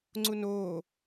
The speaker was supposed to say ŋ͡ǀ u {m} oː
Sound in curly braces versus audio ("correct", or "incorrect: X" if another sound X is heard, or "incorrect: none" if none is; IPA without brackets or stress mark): incorrect: n